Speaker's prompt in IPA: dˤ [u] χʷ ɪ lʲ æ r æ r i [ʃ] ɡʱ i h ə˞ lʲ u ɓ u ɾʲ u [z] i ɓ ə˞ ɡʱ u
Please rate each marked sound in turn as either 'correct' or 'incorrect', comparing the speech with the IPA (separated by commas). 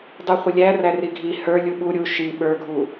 correct, incorrect, incorrect